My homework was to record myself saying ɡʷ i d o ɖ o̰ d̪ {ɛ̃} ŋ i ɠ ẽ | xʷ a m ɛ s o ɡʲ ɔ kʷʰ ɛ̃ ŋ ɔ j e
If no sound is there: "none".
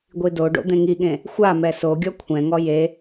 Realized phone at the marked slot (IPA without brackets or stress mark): ẽ